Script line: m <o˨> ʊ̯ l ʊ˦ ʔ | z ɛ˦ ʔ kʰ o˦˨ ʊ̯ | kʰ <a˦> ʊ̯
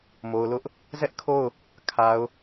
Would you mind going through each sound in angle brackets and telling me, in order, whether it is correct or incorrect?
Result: correct, incorrect

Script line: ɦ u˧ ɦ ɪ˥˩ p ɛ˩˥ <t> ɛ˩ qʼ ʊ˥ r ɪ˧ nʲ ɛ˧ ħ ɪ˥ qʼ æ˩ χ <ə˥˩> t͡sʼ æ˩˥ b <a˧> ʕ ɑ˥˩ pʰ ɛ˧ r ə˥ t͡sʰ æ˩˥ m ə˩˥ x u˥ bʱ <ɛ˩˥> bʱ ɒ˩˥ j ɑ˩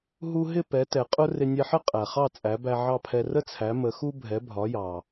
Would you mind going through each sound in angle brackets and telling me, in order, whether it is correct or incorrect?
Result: correct, incorrect, incorrect, correct

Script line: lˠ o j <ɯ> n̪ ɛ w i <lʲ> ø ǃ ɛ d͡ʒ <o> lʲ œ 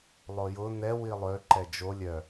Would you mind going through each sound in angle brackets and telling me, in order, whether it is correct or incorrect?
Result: incorrect, incorrect, correct

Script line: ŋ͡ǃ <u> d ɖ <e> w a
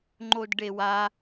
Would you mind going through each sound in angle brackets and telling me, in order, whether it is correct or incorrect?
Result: incorrect, correct

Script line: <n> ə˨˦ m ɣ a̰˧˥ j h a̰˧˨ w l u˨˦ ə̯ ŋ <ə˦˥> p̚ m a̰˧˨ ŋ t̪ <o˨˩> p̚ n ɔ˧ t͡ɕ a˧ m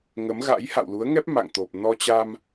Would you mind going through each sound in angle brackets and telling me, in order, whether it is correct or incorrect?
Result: incorrect, incorrect, correct

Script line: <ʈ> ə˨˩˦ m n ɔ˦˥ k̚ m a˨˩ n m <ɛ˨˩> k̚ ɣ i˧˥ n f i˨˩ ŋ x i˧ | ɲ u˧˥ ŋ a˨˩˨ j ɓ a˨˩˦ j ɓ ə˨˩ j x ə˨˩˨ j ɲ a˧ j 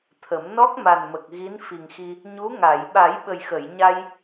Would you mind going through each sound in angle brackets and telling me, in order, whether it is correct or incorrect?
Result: incorrect, incorrect

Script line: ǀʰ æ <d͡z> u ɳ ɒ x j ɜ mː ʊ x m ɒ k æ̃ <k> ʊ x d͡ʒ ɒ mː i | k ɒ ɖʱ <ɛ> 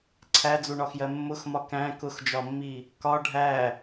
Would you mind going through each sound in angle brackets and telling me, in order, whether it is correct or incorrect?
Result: correct, correct, incorrect

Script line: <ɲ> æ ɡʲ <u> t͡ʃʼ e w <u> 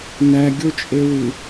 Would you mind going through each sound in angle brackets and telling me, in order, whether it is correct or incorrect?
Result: incorrect, incorrect, correct

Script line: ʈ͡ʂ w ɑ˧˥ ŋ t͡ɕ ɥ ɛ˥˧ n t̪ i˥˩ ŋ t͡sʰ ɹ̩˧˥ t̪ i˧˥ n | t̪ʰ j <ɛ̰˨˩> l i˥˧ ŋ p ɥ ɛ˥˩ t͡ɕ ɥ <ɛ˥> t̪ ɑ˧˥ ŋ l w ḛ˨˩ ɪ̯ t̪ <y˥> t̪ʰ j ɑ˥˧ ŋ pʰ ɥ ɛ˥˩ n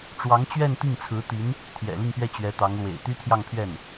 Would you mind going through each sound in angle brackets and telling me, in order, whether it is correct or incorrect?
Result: correct, incorrect, correct

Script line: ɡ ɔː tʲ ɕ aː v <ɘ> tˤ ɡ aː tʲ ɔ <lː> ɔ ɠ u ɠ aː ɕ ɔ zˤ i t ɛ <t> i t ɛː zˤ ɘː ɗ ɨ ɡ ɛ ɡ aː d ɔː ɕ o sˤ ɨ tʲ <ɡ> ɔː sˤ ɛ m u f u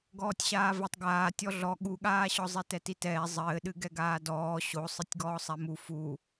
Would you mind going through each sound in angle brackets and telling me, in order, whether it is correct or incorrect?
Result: correct, incorrect, correct, correct

